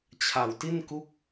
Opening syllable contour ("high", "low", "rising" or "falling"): low